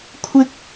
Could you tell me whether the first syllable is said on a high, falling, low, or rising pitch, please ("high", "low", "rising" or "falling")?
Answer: high